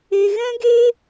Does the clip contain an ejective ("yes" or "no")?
no